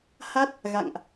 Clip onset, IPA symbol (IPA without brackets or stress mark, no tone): h